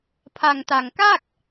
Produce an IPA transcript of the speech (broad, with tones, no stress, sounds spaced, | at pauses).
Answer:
pʰ a˧ ŋ t a˧ ŋ k aː˥˩ k̚